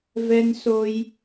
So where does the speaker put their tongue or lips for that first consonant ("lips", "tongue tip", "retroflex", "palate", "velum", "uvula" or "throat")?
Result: lips